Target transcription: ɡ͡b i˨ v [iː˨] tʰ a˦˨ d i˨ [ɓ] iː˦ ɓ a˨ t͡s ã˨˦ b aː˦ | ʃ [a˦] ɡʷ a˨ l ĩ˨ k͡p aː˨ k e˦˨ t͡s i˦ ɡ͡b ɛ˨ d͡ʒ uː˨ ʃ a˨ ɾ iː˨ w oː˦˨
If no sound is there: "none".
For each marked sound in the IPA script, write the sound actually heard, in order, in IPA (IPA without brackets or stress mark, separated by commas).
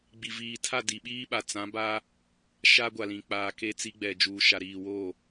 iː˨, ɓ, a˦